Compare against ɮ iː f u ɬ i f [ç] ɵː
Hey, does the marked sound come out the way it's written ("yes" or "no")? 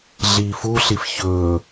yes